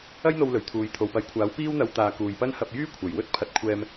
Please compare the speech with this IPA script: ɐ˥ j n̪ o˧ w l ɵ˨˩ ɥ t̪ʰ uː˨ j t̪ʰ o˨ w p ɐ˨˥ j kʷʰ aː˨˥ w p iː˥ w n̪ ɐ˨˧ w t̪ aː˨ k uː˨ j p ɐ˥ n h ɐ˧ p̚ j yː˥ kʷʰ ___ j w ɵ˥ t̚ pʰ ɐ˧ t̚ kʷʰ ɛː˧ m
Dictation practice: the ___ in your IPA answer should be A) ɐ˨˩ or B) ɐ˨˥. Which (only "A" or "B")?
A